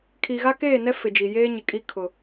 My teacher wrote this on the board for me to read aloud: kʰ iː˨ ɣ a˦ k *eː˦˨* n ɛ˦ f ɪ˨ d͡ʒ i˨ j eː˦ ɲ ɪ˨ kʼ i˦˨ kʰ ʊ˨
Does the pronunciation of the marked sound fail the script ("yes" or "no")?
no